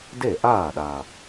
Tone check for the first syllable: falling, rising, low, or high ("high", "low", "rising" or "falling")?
falling